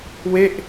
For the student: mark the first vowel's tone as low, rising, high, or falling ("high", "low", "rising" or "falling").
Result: falling